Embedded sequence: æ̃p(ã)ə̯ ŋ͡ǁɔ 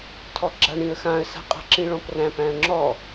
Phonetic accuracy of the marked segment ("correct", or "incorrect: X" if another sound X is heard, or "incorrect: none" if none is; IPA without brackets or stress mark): incorrect: æ̃